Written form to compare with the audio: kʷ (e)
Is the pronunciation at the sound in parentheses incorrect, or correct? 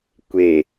correct